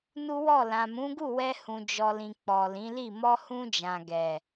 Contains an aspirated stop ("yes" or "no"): no